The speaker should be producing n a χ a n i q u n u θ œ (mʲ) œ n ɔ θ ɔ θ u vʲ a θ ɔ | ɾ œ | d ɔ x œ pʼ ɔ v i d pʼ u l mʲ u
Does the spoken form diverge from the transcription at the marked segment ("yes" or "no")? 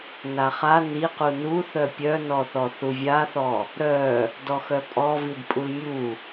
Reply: yes